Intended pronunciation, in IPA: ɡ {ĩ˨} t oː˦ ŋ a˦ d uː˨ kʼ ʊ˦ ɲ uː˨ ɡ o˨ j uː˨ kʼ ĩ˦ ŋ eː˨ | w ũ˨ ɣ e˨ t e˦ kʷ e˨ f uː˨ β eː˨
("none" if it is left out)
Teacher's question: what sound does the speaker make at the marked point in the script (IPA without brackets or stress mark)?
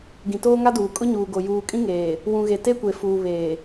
ĩ˨